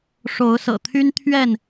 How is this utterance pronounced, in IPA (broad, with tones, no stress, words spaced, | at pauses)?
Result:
ʂo˨˦ʊ̯sɤ̰˨˩t̪ʰy˦n t̪ʰɥɛ˥˨n